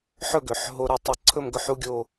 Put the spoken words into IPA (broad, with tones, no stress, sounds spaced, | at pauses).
ħ ɵ˥˧ ɡ ø˩˧ ħ ɦ o˧ ɾ ɵ˧ tˤ ɐ˧ ǀʰ ɵ˥˧ m ɡ ɵ˥˧ ħ u˥ ɡʲ o˥˧